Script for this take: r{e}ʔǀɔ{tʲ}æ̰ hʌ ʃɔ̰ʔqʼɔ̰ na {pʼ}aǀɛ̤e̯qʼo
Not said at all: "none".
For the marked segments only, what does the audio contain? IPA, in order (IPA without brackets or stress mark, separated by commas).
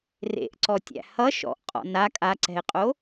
ḛ, tʲ, kʼ